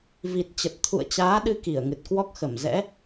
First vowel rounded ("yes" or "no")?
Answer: no